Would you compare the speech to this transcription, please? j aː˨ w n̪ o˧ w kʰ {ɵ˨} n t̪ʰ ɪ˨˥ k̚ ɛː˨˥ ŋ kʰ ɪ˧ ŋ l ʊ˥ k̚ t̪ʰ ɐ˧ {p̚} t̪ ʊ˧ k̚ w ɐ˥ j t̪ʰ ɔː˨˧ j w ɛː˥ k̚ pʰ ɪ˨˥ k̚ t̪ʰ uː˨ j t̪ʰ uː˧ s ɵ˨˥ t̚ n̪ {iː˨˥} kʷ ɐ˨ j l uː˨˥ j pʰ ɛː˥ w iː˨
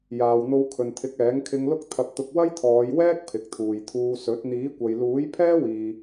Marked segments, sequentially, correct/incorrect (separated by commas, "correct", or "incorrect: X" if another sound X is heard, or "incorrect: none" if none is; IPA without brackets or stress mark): correct, correct, correct